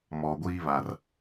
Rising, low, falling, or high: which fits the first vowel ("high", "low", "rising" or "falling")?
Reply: low